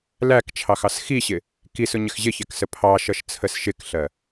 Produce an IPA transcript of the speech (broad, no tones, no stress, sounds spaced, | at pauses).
l æ k t͡ʃʰ ɑ x ɑ s x i ɕ ɪ | k i s ʊ ɲ ɪ x ʑ ɪ ç ɛ k s ə pʰ ɑ ʃ ʌ ʃ t͡sʰ ə s ʃ ɪ k ɬ ɜ